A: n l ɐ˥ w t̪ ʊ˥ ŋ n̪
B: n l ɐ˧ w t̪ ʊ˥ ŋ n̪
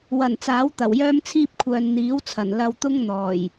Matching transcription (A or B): B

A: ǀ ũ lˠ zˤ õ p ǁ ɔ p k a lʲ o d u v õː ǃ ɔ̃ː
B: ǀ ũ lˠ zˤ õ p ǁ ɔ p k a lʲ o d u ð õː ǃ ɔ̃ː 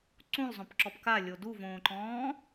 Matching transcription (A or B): A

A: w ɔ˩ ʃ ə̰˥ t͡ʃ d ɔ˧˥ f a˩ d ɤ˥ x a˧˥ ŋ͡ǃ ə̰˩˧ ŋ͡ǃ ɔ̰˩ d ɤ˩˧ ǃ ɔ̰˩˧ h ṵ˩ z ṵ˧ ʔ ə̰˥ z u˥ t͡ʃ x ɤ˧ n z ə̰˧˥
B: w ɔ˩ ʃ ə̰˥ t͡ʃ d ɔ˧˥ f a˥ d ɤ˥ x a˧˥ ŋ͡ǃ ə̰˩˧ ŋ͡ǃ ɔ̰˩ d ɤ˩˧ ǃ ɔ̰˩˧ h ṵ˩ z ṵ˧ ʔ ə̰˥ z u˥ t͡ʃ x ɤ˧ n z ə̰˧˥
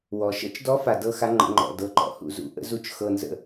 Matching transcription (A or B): A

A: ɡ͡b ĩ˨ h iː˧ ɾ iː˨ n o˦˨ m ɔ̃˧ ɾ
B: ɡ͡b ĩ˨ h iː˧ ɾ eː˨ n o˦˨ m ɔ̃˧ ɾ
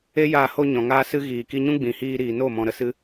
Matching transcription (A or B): A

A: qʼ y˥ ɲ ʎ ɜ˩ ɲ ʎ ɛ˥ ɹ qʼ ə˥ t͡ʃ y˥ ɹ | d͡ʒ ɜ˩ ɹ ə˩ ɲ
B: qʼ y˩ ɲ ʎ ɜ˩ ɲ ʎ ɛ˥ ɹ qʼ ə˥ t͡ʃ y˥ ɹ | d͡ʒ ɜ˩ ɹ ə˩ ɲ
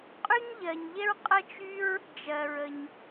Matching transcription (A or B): A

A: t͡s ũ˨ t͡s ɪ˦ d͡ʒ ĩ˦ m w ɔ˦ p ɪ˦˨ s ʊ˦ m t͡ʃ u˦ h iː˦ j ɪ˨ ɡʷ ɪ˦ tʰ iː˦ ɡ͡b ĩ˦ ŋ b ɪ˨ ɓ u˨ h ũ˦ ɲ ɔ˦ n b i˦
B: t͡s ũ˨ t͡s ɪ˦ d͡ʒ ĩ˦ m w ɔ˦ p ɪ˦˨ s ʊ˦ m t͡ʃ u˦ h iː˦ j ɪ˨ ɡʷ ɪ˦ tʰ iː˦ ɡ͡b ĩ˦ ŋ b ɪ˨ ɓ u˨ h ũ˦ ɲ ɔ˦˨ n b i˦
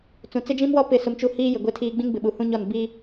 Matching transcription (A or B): B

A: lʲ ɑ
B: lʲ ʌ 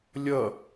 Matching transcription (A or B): B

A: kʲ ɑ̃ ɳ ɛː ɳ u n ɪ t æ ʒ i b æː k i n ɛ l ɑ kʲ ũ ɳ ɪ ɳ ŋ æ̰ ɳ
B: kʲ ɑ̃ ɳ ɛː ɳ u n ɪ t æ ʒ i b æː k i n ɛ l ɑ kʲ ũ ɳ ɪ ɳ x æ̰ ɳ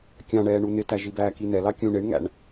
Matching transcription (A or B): A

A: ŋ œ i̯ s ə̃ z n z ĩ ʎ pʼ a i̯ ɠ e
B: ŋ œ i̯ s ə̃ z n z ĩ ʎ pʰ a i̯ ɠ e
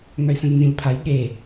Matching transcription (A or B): B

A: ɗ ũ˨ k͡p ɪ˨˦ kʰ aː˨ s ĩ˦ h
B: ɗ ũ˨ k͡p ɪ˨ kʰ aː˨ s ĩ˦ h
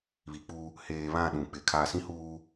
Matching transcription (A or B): A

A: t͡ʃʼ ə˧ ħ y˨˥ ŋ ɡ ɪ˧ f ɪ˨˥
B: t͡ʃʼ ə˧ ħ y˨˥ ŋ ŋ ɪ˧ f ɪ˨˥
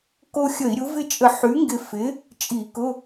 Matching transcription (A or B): A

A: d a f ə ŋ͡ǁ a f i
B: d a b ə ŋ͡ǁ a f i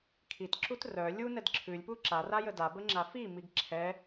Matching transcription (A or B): B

